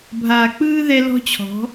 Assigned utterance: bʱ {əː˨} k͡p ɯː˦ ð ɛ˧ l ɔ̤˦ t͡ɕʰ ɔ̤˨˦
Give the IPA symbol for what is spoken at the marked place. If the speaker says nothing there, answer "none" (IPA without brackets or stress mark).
aː˨